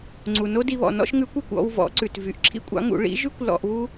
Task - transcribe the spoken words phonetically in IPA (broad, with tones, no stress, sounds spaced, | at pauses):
ŋ͡ǀ u˩ n o˥ d i˧ β ɔ̰˩ n ɔ̰˥ ʃ ŋ ʉ˧˥ kʷ ø˩˧ kʷ ɔ̰˧ w v ɔ̰˩˧ ǀ ʉ˩ t v y˩ ʔ ǁʰ ḭ˥ kʷʼ ɑ̰˧˥ ŋ ṵ˩˧ ɭ ḭ˧˥ ʒ ʉ˥ kʷ l ɔ̰˧ ʔ β u˥